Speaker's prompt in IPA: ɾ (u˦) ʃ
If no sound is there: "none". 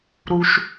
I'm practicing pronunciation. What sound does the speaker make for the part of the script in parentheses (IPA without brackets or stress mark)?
u˦